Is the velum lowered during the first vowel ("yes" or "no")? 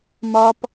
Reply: no